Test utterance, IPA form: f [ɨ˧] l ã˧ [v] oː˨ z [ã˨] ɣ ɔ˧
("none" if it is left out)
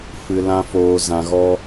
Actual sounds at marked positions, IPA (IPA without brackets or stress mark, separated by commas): ɨ˨, f, ã˨